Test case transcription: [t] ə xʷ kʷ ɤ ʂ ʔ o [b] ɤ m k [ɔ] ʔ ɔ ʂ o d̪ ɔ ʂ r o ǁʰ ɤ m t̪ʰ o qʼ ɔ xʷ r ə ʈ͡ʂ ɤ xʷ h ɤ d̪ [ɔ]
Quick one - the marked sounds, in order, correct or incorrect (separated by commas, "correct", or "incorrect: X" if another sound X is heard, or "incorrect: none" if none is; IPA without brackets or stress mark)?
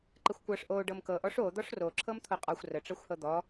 incorrect: ǃ, incorrect: ɖ, incorrect: ɤ, correct